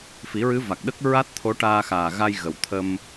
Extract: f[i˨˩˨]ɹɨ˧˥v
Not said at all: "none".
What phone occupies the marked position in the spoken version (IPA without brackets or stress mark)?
i˨˩˦